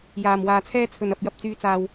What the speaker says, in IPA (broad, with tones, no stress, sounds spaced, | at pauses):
j aː˨˩ m w aː˨ t͡sʰ ɛː˥ t͡sʰ ɵ˨ n ɐ˨ p̚ j ɐ˨ p̚ t͡s yː˨˧ t͡s aː˨ w